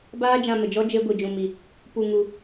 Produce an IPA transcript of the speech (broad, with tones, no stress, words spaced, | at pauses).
baː˦d͡ʒã˧mə˨d͡ʒɔ˦ d͡ʒe˦ɡʷi˧d͡ʒũ˧mi˧ | pu˧ŋu˧